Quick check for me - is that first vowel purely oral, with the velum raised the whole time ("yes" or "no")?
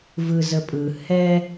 yes